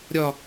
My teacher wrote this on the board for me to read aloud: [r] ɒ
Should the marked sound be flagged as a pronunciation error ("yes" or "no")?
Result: yes